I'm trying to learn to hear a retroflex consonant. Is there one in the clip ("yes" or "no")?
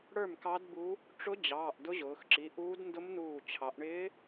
yes